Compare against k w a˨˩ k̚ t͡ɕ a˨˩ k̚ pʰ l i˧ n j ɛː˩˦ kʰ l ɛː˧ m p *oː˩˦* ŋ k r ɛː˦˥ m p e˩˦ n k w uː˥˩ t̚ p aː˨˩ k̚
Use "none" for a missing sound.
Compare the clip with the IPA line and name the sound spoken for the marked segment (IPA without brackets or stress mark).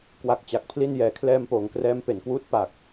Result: oː˩˦